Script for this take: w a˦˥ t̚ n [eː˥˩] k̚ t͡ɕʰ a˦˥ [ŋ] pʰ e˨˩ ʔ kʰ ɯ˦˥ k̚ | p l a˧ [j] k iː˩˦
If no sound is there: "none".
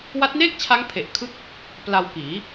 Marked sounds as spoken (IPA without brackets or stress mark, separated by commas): eː˥˩, ŋ, w